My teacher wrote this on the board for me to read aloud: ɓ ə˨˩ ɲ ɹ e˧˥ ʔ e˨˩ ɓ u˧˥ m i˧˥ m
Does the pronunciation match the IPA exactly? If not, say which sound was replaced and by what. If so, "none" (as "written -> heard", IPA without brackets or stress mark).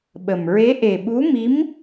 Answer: ɲ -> m